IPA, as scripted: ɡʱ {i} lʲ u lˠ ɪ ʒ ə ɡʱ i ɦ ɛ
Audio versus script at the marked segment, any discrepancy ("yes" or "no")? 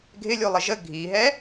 yes